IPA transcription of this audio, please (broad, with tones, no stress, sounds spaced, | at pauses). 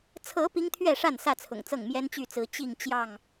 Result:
t͡sʰ ɤ˨˦ p i˦ ŋ t̪ʰ ɥ ɛ˥˨ ʂ a˥˨ n s ä˥˨ t͡sʰ ʊ̰˨˩ ŋ t͡s ɤ˥˨ ŋ m j ɛ˦ n t͡ɕ y˥˨ t͡s ɹ̩˨˦ t͡ɕ i˥˨ ŋ t͡ɕ j ɑ˥˨ ŋ